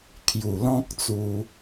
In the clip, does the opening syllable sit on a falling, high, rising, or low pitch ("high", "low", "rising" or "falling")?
low